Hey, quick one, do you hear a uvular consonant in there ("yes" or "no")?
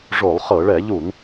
yes